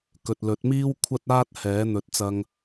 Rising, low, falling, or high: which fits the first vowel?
low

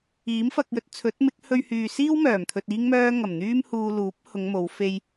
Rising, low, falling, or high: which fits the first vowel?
rising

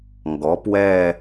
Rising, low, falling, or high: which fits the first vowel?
rising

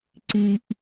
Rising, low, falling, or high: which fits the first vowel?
low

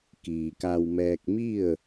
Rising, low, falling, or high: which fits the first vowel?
low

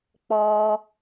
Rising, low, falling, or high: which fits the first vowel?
high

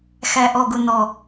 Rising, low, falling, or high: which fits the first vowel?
low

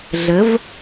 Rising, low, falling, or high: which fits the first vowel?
rising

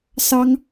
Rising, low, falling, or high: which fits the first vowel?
high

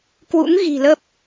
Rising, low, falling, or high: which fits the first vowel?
rising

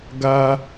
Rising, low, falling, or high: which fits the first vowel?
high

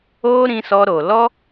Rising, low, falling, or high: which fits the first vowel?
high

